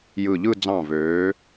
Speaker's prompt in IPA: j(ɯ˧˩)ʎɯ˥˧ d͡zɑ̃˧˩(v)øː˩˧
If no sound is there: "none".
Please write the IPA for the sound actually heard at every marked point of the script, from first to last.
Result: ɯ˧˩, v

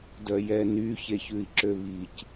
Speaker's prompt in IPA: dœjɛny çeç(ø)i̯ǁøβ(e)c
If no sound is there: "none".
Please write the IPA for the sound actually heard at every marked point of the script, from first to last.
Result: ʉ, i

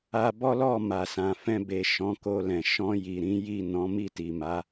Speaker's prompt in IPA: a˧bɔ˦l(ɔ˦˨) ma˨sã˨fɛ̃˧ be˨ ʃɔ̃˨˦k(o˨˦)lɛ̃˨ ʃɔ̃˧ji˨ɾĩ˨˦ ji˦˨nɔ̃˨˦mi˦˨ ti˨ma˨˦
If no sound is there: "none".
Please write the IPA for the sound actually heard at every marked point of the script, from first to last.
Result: ɔ˦˨, o˧

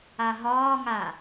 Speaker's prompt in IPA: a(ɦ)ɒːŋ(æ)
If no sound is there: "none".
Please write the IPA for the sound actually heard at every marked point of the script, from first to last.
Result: ɦ, a

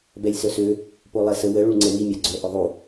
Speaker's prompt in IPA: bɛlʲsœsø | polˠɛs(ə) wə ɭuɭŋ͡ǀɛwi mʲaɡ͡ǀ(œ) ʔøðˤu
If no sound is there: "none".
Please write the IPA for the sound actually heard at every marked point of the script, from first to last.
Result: ə, œ

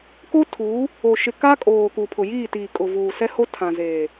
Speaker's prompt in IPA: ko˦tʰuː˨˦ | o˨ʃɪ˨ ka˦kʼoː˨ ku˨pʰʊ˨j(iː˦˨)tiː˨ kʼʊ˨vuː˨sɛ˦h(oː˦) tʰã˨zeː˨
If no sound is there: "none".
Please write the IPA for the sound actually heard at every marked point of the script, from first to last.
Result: iː˦˨, o˦

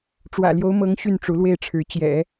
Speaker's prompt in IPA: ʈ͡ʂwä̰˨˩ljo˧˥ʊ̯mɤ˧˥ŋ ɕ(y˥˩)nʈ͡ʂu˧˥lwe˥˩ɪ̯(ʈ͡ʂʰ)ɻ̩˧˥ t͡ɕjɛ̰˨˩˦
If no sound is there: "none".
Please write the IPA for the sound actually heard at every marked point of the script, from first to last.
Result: y˥˩, ʈ͡ʂʰ

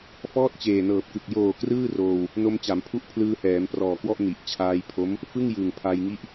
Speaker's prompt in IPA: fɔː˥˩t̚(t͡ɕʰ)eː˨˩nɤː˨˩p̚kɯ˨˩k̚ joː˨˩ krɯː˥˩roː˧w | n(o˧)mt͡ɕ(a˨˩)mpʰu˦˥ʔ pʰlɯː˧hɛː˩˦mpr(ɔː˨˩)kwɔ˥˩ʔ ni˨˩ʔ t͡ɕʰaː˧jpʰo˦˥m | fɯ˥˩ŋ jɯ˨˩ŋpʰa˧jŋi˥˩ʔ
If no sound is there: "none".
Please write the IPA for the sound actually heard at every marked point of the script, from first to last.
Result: t͡ɕ, o˧, a˩˦, ɔː˨˩

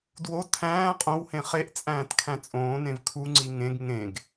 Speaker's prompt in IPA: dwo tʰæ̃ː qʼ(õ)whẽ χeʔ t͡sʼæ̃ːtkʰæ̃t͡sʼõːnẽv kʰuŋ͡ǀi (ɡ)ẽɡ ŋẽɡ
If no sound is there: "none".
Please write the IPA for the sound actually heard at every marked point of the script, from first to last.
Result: õ, ŋ

